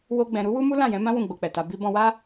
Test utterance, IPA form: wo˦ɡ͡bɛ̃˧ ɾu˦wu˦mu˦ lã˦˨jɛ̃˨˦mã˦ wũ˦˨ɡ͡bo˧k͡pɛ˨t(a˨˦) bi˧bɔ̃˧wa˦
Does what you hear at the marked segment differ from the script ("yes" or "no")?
yes